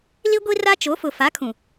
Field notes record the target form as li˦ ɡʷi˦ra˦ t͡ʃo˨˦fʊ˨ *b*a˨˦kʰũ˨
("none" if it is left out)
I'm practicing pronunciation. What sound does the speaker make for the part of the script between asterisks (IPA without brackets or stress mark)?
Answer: f